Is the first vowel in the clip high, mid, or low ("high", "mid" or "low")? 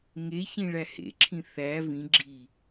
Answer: mid